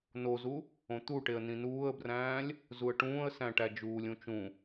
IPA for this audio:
n o z u | õ t̪ u ʈ e ə̯ n ĩ n uː ə̯ b r æ̃ː lʲ | z u ə̯ ʈ ũː ə̯ s æ̃ ʈ æ d͡ʒ uː lʲ ũ t͡ʃ ũ

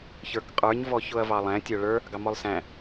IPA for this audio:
ç ə˞ k qʼ ə˞ ɲ v ɔ ç ʊ ɐ̯ v ɑ lˠ æ̃ tʲ ə˞ ɭ ə˞ | ɡ ɑ m ɔ lˠ s æ̃

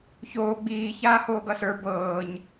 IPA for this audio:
ç oː ɡ͡b iː ç aː h oː ɡ ʌ s ə˞ b ɤː ɲ

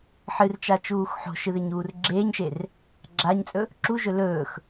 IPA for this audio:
ħ ɨ r t͡ʃ a t͡ʃ uː x ħ o̤ ʃ ɨ ð e ɲ uː r ɡ͡ǁ eː ɲ ʃ e r | ɡ͡ǁ a ɲ t͡sʼ ɵ | ǁ u ʒ ɵ l ɵː x

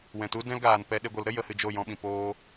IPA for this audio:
w ɛ̃˨ t u˦ d ɛ̃˦ l ɡ aː˨ n p ɛ˧ ɗ e˧ ɡʷ ə˨˦ l ɾ ə˦ j ə˧ h ɨ˧ d͡ʒ o˦˨ j ɔ̃˧ ɓ ĩ˨ p oː˦

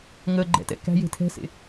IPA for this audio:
ŋ ə ɡ͡ǃ ɛ̰ t ɛ̰ k æ̤ j e̤ tʰ ɛ̤ s ḛ

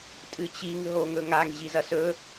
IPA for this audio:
tʼ ɨ t͡ɕ i ŋ ɦ o ŋ ɵ ŋ a ŋ ʑ i z ɐ s ɵ

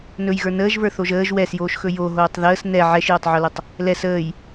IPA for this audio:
n ɵ j ɣ ə˞ n əː ʒ v ə˞ θ o ʒ əː ʒ w ɛ s j oː ʃ x ɵ j o ɦ oː tˤ ð əː s n ɛ ʕ ɛ ʃ j o tˤ ʕ o l ɵ tˤ | l ɛ s əː j

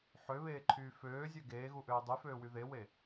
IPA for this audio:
ħ ø β eː ǃʰ yː f øː zʲ ø ɡ eː ɣ u ʔ øː dˤ y f øː w y ð e w e

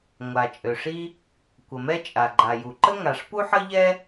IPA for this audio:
ŋʷ a˩ t͡ʃʼ ø˩ ʂ i˥ | kʷ ə˩ m ɛ˥ t͡ʃʼ a˩ ɡ͡ǃ a˩ j u˩ ǃ ə˥ ŋ a˩ ʂ p u˥ ħ ə˥ ʎ ɛ˥

